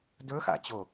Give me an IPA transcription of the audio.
dɵxa̰t͡ɕo

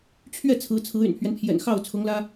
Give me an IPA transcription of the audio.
t͡ɕʰɥɛ˥˩ t͡sʰɹ̩˧˥t͡sʰɹ̩˧˥ y̰˨˩npʰɥɛ˦npʰjɛ̰˨˩n xɑ˥˩ʊ̯t͡sʰʊ˧˥ŋlä˥

